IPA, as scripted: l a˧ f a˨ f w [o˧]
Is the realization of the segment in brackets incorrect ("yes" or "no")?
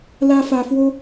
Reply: no